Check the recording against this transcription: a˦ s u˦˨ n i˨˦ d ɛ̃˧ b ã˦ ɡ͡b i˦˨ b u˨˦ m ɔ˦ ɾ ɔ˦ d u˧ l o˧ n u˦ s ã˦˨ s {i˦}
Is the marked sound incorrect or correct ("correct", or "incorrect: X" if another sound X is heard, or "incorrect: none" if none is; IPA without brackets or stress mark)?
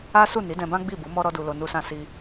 incorrect: i˧